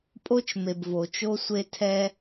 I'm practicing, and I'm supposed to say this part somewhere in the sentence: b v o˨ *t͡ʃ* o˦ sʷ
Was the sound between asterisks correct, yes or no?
yes